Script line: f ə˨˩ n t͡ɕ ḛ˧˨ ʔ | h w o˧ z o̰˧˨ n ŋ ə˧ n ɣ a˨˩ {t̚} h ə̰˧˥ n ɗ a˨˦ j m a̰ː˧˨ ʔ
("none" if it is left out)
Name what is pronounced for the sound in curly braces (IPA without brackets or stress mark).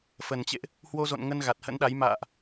t̚